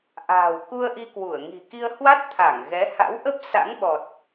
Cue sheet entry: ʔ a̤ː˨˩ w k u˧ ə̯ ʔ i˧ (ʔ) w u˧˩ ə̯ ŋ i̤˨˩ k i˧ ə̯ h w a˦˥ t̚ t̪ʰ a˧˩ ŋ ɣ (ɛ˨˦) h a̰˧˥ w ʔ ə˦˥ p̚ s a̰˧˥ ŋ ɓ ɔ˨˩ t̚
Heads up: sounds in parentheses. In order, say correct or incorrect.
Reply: incorrect: k, correct

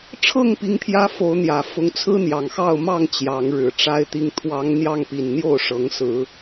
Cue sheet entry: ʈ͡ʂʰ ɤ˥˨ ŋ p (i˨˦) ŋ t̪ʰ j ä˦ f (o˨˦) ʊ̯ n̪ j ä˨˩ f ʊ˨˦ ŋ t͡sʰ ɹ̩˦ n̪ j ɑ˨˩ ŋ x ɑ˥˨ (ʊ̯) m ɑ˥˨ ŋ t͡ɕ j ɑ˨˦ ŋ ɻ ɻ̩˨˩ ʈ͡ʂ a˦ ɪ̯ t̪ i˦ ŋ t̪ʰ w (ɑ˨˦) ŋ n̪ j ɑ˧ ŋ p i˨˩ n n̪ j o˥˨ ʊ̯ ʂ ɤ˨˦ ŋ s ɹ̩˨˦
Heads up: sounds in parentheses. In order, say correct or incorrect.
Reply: correct, correct, correct, correct

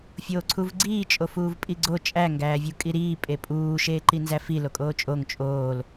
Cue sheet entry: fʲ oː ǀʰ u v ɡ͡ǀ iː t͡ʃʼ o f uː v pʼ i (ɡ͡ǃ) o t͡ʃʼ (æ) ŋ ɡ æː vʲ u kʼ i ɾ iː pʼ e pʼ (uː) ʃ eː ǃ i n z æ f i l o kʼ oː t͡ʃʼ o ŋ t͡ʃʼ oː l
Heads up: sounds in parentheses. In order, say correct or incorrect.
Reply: incorrect: ɡ͡ǀ, correct, correct

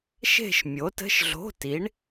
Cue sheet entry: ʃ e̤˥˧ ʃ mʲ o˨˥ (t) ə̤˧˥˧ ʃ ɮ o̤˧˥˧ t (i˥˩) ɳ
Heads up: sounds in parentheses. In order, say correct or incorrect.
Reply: correct, incorrect: i˨˥

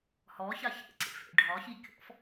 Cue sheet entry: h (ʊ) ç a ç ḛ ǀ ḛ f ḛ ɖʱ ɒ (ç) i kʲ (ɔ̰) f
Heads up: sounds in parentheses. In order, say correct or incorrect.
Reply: incorrect: ɔ, correct, correct

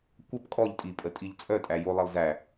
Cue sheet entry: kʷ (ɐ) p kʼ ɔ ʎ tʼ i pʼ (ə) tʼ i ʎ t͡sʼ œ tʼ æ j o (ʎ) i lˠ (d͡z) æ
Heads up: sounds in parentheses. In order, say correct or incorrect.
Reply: correct, correct, incorrect: lˠ, incorrect: z

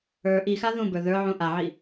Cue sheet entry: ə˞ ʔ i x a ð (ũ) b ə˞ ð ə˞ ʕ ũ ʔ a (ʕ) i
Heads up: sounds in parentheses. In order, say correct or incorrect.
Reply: correct, correct

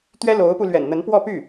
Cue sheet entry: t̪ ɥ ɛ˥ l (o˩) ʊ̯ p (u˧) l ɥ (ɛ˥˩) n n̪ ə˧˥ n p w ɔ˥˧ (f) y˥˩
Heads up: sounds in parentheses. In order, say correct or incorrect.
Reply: incorrect: o˧˥, correct, incorrect: ɛ̰˨˩, incorrect: p

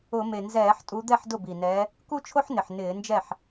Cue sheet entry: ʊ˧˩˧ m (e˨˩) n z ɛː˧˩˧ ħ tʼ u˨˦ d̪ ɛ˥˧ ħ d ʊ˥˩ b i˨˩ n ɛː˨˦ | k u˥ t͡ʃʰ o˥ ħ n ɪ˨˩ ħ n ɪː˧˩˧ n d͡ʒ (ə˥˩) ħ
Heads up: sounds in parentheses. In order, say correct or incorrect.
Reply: correct, incorrect: ɛ˥˩

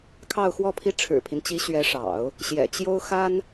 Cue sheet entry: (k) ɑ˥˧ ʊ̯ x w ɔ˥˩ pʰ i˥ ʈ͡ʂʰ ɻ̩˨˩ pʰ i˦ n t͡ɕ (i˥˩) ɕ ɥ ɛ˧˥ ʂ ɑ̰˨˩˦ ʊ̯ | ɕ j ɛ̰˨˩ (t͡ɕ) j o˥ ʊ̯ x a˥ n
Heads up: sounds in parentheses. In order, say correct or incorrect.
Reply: incorrect: kʰ, incorrect: i˧˥, correct

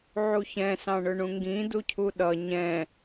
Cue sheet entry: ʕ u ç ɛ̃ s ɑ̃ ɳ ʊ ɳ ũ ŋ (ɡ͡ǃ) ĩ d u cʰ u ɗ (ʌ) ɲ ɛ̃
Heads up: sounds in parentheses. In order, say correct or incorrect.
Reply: incorrect: ɡ, correct

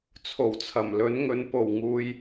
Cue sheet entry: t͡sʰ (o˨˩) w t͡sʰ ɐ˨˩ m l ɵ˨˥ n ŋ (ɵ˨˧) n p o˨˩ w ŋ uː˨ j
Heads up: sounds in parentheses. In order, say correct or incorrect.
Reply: correct, correct

